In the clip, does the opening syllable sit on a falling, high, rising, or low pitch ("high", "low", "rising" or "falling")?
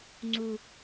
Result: low